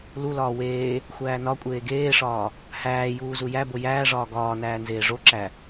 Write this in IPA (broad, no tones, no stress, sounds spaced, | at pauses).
l u l ɒː w eː | xʷ æː n ɒ kʷʼ eː ɡ eː ʂ ɒː | h æː j uː z u j æ b o j æː ʐ ɒː ɡ ɒː n æː n z eː ʐ o ǁ æ